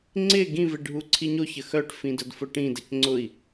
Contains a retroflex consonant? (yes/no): yes